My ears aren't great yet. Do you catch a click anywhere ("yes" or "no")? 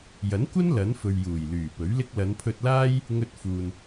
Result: no